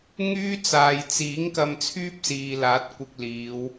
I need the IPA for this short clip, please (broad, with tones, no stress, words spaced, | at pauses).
ŋyː˥t͡saː˨j t͡siː˨˥ŋ kɐ˧mt͡sʰyː˥p̚siː˨laː˨˥t̚ kʷɪ˧k̚liː˨˧w